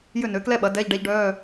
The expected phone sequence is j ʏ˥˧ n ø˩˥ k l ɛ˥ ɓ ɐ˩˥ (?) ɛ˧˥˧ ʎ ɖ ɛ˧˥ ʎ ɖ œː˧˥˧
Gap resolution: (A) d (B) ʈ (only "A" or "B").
A